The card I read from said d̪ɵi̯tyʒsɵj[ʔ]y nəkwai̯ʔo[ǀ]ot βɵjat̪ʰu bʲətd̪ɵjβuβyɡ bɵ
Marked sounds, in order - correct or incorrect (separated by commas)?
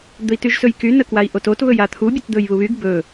incorrect, incorrect